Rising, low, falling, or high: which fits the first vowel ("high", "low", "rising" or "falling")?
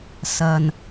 low